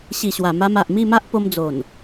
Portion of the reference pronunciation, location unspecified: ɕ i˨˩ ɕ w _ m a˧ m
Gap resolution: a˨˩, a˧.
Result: a˨˩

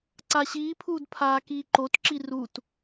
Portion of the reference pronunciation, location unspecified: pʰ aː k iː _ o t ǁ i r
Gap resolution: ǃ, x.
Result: ǃ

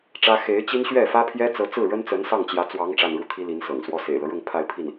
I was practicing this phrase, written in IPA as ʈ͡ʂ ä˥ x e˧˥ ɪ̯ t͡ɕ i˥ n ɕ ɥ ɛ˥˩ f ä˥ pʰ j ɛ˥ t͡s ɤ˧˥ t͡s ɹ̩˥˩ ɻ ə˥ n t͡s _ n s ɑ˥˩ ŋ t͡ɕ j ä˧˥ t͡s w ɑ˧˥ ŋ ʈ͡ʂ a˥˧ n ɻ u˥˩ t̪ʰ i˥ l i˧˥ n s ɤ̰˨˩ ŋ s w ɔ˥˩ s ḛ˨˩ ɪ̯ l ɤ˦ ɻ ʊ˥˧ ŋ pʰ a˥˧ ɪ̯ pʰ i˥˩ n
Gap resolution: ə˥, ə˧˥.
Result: ə˧˥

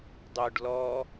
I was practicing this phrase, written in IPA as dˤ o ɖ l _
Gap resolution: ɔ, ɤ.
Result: ɔ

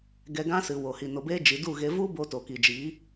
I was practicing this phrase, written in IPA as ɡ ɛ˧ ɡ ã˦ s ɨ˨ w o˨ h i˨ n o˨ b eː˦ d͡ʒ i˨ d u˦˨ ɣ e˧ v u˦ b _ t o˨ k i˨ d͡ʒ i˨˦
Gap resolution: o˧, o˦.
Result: o˧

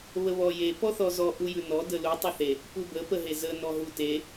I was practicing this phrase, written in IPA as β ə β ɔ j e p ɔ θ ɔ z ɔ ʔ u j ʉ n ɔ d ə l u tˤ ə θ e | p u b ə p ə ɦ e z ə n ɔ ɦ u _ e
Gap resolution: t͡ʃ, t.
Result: t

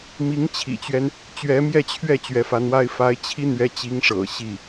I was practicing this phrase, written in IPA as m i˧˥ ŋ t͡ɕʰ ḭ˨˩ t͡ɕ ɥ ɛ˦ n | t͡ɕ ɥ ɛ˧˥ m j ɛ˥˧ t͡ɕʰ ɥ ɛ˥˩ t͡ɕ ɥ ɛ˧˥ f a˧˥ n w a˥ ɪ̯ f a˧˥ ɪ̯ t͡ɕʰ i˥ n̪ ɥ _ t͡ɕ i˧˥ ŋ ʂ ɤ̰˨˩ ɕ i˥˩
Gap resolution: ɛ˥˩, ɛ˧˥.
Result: ɛ˧˥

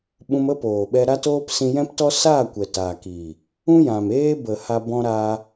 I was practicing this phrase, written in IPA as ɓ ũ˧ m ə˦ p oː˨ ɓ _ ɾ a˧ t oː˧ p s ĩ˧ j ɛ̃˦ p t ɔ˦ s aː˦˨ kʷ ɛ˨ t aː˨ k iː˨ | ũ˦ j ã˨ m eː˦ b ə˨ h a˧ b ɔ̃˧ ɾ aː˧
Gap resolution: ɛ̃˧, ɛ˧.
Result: ɛ˧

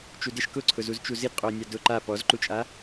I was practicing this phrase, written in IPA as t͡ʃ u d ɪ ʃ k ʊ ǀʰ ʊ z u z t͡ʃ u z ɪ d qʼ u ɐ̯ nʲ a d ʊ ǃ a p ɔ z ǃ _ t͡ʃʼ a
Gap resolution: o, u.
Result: u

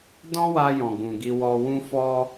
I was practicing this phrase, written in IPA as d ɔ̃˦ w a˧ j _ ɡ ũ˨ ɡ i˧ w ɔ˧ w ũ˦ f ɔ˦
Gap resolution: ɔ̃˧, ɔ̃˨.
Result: ɔ̃˨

